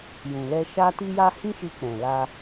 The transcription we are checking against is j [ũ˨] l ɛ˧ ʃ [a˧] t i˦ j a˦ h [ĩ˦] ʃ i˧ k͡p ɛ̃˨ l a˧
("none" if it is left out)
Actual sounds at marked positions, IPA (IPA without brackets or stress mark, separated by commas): ũ˨, a˦, ĩ˦